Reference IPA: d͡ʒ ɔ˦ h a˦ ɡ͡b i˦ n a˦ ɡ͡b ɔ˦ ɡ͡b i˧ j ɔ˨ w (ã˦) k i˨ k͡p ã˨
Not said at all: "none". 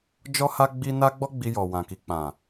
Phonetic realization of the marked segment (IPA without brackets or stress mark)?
ã˨